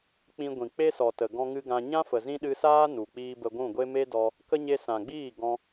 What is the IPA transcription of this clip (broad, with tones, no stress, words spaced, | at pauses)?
k͡pĩ˧ɡʷĩ˨k͡pe˦ sɔ˨tə˨ ɡɔ̃˧ŋɨ˧ ɡã˧ ɲã˦fə˨ zĩ˦ɗɨ˧ saː˦nu˨k͡piː˧ bə˧ɡʷũ˦˨ɡʷe˦ me˦dɔ˧ | kə˦ ɲe˧sã˨ɡ͡biː˦˨ ɡɔ̃˦